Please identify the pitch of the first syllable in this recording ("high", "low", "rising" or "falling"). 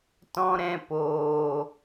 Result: high